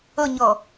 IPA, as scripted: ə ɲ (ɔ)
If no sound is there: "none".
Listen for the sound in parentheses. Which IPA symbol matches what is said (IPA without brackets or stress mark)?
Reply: ʌ